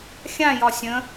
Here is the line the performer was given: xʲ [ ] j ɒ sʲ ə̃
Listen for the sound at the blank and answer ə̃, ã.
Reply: ã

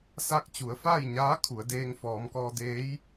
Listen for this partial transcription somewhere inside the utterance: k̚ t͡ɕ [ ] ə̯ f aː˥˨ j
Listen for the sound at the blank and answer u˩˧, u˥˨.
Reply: u˩˧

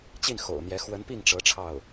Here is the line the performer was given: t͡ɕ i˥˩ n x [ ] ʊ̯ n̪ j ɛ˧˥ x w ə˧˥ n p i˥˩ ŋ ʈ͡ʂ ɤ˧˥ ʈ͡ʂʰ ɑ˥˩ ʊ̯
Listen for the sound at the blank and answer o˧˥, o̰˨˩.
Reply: o̰˨˩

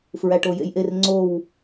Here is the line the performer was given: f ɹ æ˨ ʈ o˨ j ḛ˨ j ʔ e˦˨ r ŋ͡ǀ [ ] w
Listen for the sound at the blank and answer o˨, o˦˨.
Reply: o˦˨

